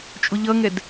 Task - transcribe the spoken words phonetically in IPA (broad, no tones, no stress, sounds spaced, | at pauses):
t͡ʃʼ ʊ ʎ ʌ ŋ ɛ d